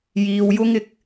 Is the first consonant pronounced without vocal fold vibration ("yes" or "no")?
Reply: no